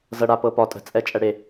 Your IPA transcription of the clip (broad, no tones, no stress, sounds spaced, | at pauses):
z ɤ ɽ a p ɤ p ɒ tʼ ə̤ t͡sʼ ɛ t͡ʃʼ ɛ ɽ e